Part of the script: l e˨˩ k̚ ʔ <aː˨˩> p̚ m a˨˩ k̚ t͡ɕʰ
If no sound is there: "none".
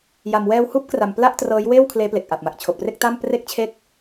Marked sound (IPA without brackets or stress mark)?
a˨˩